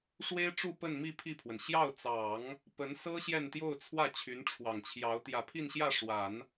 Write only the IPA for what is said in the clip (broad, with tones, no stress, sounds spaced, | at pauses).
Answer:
ʂ w e˥ ɪ̯ ʈ͡ʂ u˥˧ p ə˥˧ n m i˥˧ pʰ i˥˩ pʰ w ə˩ n ɕ j ɑ˥˩ ʊ̯ t͡s ɑ˨˩˦ ŋ | p ə˧˥ n s ɤ˥ ɕ j ɛ˥˧ n t̪ j o˥˧ ʊ̯ t͡sʰ w ä˥˩ t͡ɕʰ y˧˥ n ʈ͡ʂʰ w ɑ˨˩ ŋ t͡ɕʰ j ɑ˧˥ ʊ̯ t̪ j ä˨˩ pʰ i˥˧ n ɕ j ä˥˩ ʂ w a˨˩˦ n